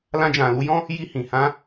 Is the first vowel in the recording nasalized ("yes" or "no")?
yes